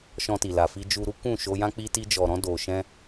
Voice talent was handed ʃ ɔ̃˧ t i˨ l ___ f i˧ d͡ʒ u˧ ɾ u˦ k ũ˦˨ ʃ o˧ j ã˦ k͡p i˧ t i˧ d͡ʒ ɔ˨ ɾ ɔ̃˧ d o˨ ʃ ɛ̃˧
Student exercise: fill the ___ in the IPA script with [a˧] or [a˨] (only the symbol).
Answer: a˨